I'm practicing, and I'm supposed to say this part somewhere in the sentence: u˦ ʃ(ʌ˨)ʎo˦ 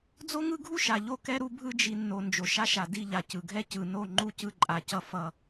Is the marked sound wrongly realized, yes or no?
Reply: yes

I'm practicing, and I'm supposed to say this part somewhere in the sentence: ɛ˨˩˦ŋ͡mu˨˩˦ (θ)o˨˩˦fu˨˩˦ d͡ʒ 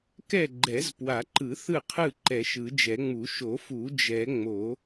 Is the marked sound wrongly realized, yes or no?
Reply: yes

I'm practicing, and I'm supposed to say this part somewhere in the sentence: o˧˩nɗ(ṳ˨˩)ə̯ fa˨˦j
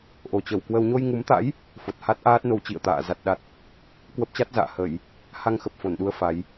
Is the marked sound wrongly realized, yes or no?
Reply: yes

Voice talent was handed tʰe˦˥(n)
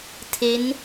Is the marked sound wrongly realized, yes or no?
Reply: no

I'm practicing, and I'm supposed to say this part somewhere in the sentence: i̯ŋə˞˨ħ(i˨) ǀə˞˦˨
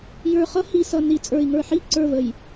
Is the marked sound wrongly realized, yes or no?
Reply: yes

